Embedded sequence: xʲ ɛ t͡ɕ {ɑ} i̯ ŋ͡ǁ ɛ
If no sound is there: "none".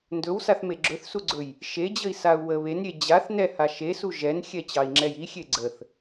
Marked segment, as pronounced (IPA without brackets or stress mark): ɑ